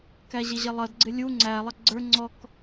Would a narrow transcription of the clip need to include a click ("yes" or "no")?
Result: yes